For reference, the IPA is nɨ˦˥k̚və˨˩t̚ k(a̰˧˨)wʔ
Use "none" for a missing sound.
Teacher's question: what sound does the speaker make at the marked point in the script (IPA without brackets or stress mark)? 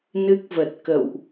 ə̰˧˨